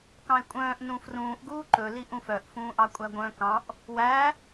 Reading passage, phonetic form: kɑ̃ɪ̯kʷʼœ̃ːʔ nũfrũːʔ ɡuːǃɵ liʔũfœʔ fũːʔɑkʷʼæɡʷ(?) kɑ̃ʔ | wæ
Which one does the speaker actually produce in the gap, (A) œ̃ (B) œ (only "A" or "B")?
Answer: A